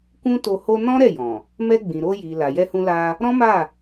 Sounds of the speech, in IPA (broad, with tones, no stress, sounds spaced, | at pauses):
k ũ˦ t o˧ h o˧ n ɔ̃˦ ɾ ɛ˦˨ j ɔ̃˨ | m ɛ˧ ɡ͡b ĩ˨ ɾ o˧ j i˨ l a˨ j ɛ˧ h ũ˧ l a˧ | ɾ ɔ̃˦ m a˦˨